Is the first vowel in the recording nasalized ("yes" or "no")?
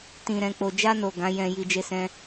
yes